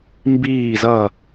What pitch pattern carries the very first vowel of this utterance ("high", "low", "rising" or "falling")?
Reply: falling